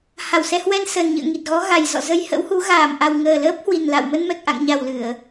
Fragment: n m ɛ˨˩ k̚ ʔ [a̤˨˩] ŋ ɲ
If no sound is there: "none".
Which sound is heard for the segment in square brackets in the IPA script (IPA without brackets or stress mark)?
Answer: a̰˧˨